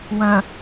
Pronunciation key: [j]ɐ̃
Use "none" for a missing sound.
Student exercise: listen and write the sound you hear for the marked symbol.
w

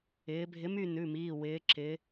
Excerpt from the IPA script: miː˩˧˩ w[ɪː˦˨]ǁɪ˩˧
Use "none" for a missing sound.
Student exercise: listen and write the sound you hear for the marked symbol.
ɪː˩˧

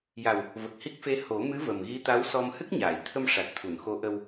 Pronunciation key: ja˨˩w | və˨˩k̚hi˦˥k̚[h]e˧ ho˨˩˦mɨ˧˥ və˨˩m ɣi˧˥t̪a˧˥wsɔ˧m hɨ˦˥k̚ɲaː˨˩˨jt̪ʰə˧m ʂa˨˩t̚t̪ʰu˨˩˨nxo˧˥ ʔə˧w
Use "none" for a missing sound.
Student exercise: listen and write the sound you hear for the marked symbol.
f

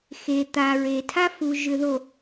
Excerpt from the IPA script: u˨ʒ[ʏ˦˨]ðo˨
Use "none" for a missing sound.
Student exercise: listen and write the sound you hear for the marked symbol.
ʏ˨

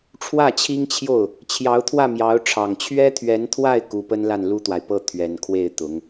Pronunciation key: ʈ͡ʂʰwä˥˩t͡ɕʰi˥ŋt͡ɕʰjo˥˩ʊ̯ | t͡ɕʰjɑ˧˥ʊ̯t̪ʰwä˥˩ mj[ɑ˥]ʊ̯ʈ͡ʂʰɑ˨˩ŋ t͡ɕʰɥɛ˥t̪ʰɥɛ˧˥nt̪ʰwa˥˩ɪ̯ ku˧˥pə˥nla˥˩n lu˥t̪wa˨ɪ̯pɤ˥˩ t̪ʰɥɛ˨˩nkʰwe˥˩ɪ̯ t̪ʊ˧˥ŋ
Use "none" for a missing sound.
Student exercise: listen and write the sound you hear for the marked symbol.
ɑ˧˥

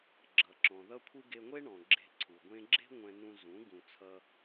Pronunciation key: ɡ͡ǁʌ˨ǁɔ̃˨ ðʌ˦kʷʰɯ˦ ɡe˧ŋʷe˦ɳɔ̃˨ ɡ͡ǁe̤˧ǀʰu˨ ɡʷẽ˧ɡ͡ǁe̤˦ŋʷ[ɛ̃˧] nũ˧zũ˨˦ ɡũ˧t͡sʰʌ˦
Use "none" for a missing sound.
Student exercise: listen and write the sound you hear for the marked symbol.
ɛ̃˧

